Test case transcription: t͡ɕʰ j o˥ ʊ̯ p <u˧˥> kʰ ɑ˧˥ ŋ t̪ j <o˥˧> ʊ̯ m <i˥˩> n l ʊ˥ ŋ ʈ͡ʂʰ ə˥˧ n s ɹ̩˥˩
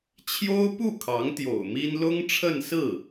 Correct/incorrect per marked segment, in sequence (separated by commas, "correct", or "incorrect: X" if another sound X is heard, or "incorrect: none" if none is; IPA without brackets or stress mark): incorrect: u˥˩, incorrect: o̰˨˩, incorrect: i˥